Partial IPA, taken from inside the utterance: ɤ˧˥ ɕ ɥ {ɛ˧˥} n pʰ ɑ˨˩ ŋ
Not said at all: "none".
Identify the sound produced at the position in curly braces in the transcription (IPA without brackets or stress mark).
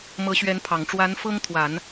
ɛ˧˥